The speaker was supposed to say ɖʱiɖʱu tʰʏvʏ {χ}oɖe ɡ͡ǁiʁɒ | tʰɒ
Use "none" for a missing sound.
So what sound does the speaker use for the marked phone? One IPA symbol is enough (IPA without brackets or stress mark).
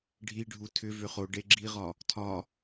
χ